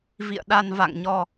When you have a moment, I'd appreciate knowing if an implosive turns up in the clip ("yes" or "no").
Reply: yes